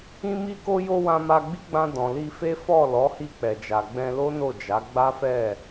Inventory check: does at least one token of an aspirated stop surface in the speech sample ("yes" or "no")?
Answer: no